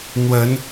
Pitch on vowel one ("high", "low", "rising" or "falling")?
rising